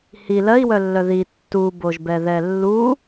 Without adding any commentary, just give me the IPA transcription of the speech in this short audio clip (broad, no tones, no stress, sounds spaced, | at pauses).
h i l ɜ i̯ w œ lː œ ð i tː u b o ʒ b ɛ ð ɛ lː u